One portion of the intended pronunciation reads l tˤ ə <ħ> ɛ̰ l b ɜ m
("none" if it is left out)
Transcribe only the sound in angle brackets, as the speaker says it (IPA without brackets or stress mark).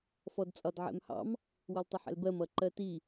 ħ